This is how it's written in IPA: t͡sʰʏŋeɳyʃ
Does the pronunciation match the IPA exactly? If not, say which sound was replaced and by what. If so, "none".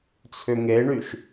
none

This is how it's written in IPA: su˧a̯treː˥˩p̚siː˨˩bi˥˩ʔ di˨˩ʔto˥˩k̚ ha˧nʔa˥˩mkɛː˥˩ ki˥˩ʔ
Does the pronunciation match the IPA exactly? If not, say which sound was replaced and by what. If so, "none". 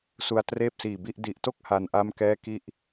none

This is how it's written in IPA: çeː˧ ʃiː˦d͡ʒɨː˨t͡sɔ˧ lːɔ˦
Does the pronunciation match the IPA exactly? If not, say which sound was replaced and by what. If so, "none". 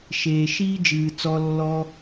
ç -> ʃ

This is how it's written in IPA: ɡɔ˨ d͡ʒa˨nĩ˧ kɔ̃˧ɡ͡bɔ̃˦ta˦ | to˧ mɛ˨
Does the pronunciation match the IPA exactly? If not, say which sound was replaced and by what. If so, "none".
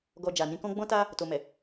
none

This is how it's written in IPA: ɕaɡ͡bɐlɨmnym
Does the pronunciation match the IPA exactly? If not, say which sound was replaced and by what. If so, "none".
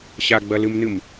y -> ɨ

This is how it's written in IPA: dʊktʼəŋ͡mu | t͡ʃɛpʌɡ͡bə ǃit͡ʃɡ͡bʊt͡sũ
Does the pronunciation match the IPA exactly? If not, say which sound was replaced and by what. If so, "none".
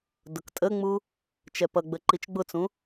none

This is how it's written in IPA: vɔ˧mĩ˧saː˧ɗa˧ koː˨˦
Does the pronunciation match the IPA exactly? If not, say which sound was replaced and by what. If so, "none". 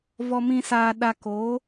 none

